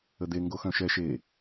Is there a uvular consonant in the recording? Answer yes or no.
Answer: no